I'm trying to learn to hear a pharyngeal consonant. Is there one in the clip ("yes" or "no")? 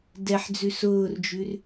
yes